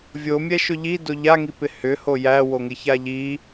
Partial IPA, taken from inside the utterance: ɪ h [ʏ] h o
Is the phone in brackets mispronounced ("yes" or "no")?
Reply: no